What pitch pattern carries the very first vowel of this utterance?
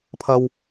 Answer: low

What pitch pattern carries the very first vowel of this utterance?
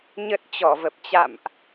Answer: low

